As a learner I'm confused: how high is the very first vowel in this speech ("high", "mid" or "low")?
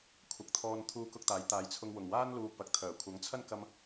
low